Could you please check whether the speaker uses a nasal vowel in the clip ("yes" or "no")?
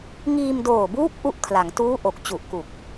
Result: no